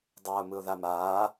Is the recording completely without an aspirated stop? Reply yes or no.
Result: yes